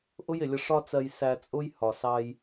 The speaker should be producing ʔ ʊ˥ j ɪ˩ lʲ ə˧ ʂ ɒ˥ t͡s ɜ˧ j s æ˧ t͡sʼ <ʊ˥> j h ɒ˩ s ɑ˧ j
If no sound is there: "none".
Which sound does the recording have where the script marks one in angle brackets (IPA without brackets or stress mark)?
ʊ˥